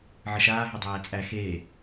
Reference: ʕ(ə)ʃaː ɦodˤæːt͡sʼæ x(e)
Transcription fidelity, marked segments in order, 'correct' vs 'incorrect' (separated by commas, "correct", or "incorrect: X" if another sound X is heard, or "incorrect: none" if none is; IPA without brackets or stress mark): correct, incorrect: eː